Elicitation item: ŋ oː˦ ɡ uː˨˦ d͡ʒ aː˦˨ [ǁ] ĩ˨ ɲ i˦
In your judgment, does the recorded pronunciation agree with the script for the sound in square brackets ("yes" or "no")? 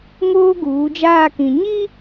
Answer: no